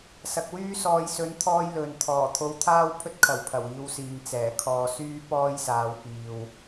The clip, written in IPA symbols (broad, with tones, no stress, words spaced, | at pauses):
sɐ˨k̚wyː˥sɔː˧j sɵ˨˧nt̪ʰɔː˧j lɵ˨n t̪ʰɔː˨˩t̪ʰo˧wt̪ʰaː˥w pʰɵ˥t̚kʰɐ˨˩w pʰɐ˨˩wiː˧wsiː˨ŋ t͡sɛː˨˩kʰɔː˧syː˥ pɔː˥jsaː˨˧w piː˨w